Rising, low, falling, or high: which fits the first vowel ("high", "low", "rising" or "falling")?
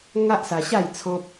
high